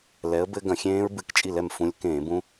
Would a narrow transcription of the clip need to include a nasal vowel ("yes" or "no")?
yes